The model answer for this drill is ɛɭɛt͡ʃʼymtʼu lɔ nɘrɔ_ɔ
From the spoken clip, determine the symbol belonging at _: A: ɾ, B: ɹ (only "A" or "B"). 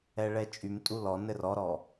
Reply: A